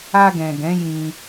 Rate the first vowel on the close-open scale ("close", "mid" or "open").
open